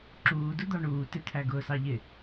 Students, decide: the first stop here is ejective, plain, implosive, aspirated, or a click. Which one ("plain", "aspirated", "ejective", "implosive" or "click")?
click